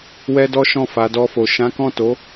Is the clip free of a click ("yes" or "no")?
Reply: yes